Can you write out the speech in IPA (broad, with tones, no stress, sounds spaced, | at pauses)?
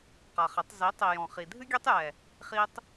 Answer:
q a˨ χ ɘ˨˦ tˤ z i˨˦ tˤ i˨ j ɔ̃˨ χ i˨ dʱ ɨ˦ ɡʲ ɛ˦ tˤ j ɛ˨ | χ i˦ tˤ